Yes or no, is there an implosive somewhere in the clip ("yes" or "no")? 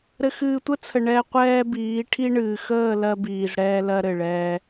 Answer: no